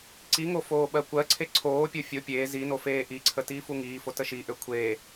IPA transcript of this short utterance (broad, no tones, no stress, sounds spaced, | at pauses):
ǀ i ŋ o f oː ɓ ɜ kʷ ɜ ǀʰ e ǀʰ oː pʲ o fʲ o pʲ eː z i n o f eː ʔ i ǀʰ ə t iː f u ŋ iː f o t ə ʃ i ʔ ø kʷʰ eː